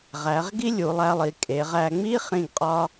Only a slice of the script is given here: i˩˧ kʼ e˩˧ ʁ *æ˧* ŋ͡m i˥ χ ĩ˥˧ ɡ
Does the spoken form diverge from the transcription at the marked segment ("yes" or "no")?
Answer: no